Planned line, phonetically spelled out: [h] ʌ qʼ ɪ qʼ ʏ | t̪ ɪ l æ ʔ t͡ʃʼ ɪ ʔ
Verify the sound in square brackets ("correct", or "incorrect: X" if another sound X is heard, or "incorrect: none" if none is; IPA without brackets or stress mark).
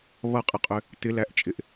incorrect: β